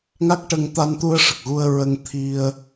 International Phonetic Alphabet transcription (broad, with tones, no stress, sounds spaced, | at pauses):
ŋ a˦˥ k̚ ʈ ə˧ ŋ t̪ a˧ n t̪ u˧ ə̯ ʂ ə˨˩ k̚ ɣ u˧ ə̯ ɹ ə˧ ŋ t̪ʰ i˧ ə̯